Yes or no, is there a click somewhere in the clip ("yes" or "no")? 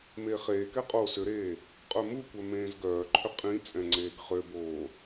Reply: yes